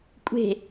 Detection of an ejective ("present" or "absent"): present